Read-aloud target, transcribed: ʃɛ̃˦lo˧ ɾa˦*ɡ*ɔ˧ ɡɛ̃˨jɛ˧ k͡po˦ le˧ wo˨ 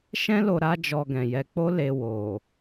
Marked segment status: incorrect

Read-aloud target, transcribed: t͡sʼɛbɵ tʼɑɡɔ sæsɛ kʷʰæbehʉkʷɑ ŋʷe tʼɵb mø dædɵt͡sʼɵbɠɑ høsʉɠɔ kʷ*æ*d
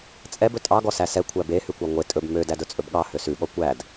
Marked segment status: correct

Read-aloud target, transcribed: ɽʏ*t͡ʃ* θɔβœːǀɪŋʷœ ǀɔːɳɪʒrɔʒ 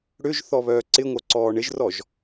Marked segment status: incorrect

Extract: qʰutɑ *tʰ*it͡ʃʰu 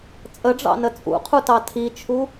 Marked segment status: correct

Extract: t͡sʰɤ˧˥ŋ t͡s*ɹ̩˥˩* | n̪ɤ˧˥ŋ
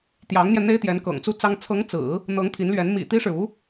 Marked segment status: incorrect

